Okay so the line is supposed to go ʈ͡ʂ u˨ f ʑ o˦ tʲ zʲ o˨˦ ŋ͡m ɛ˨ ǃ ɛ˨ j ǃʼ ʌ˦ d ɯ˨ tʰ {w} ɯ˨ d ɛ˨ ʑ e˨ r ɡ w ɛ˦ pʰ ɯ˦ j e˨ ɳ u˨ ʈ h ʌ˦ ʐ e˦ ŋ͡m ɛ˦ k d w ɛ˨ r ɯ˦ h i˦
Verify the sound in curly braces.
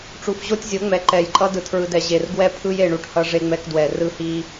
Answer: incorrect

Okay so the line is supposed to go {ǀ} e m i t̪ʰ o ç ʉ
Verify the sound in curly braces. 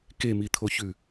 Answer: incorrect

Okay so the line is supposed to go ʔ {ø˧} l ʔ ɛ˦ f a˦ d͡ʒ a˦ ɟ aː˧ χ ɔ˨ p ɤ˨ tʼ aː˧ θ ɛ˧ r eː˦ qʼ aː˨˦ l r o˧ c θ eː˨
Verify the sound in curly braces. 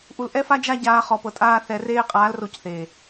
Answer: incorrect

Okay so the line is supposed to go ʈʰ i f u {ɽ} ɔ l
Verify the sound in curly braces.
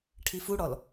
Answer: correct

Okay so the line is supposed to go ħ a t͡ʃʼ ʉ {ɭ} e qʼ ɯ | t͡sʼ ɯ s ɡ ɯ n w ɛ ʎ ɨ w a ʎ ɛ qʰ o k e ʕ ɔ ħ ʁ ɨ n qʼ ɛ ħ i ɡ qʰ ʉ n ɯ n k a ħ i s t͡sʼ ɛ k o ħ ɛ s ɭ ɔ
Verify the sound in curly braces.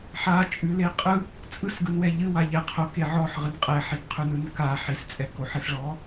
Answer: incorrect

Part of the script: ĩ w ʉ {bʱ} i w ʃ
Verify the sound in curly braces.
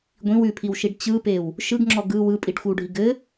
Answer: incorrect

